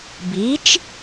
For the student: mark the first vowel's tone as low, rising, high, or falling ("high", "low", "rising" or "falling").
rising